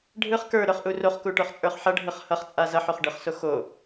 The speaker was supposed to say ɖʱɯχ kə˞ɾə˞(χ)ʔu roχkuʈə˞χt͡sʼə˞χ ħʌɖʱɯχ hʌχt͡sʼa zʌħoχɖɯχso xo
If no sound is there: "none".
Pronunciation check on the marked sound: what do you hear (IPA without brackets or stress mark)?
χ